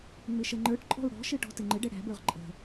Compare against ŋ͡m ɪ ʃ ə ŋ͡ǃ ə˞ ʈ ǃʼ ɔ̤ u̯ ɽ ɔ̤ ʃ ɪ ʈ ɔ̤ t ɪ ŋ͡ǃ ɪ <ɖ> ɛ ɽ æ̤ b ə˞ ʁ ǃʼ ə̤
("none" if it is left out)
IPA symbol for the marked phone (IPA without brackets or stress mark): ɖ